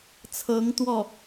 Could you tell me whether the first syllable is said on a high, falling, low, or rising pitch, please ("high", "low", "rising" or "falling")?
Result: rising